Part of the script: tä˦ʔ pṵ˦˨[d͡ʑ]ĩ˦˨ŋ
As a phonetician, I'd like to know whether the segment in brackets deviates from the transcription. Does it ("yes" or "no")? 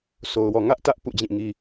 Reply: no